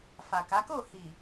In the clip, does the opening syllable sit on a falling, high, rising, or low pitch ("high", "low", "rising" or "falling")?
low